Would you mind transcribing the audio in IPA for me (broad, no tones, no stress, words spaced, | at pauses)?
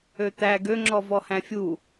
øt̪æ ɡø ŋ͡ǁɔvɔhæ̃fʲu